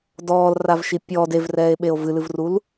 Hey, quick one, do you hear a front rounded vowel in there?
no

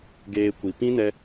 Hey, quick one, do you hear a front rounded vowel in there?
no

